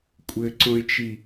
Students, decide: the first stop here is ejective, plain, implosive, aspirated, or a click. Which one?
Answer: ejective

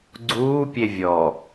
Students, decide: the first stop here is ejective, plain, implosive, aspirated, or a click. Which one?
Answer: click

